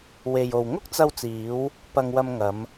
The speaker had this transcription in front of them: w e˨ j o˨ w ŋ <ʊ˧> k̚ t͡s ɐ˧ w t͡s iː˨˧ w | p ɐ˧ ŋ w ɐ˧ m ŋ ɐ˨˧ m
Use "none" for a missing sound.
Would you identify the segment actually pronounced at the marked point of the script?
ʊ˥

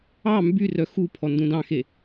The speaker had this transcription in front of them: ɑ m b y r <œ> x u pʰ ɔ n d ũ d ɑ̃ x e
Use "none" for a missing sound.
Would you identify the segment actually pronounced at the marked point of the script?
œ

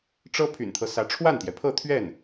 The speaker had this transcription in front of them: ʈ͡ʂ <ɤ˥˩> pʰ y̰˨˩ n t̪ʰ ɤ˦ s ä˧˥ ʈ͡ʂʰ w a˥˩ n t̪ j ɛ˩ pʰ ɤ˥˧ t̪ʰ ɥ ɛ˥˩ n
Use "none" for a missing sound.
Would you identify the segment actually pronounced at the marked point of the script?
ɤ˥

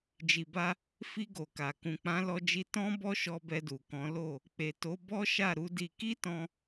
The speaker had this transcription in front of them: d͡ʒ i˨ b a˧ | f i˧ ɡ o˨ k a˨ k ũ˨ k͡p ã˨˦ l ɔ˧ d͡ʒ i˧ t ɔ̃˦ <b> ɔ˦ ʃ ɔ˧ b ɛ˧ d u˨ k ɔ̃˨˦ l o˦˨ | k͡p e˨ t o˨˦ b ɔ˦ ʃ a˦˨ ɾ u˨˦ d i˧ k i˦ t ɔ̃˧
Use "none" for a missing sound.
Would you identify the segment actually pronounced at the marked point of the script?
b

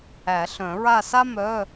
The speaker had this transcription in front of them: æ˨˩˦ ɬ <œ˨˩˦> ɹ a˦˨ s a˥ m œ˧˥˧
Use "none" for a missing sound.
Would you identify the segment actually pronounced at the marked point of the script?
œ̃˨˩˦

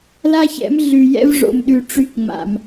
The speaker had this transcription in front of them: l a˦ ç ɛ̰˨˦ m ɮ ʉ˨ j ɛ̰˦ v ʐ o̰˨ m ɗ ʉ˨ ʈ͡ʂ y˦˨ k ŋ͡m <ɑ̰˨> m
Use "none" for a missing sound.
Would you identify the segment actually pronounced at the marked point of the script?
a̰˨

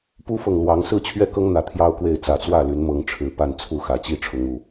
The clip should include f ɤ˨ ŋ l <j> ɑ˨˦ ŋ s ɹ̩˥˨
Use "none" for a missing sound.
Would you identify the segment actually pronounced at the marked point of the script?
w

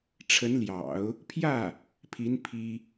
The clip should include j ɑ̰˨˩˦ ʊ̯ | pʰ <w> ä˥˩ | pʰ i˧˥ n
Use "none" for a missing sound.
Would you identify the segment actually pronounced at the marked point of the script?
j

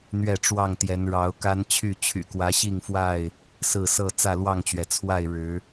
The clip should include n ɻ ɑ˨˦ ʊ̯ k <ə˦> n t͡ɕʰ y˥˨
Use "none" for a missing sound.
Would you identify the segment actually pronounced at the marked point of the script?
a˦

